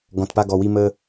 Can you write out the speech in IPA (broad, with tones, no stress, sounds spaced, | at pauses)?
ɡ ɔ̃˨ t p a˧ ɡ ɔ˨ w i˧ m ə˧